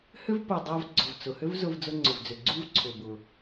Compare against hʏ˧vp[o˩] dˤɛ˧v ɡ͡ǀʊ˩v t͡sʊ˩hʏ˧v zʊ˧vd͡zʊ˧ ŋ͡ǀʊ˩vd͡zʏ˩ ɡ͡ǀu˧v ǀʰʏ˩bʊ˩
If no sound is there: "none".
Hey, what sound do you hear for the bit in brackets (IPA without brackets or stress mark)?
o˩